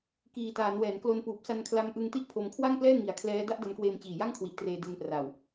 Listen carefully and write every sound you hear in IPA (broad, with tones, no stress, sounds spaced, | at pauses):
k iː˨˩ t aː˩˦ n w ɛː˩˦ n k l o˧ n p uː˨˩ p̚ s a˧ n kʰ l a˧ m ʔ ɯ˧ ŋ t i˥˩ ʔ pʰ o˧ m kʰ w a˥˩ ŋ p l ɛː˥˩ ŋ i˨˩ a̯ kʰ l ɛː˦˥ d a˥˩ ʔ d a˧ n k w eː˧ m t͡ɕ iː˨˩ j a˥˩ ŋ kʰ w i˨˩ ʔ t r eː˧ d e˧ n p r a˨˩ w